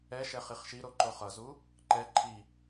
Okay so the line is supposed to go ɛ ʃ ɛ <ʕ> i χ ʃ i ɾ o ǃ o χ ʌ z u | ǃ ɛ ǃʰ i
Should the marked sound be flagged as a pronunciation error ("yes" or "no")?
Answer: yes